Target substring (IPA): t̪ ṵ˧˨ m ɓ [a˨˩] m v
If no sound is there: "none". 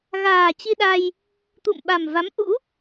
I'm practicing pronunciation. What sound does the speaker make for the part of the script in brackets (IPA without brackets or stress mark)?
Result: a˨˩